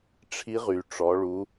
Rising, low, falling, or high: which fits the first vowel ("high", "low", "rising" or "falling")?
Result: rising